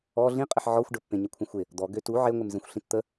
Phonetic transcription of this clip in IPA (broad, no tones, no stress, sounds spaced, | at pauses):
ɔ ɮ ĩ qʼ ɪ ħ ʕ ɔ xʷ ɖ ə pː ẽ ɲ ə kʷʰ ə̃ xʷ ɪ | d̪ ɔ ɡ ø t u ʕ e ŋʷ ɪ m z ẽ xʷ ɬ ĩ t t̪ ə